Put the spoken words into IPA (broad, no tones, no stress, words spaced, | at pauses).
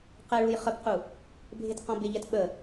qɛɭuj χəpqu | bʱetqɔ̃bɪʎɛt ɓə